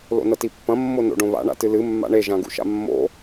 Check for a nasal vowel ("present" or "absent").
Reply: present